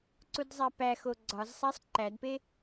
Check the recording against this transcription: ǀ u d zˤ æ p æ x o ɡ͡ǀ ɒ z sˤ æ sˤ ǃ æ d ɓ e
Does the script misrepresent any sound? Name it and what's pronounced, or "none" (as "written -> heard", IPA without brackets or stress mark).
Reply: ɓ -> p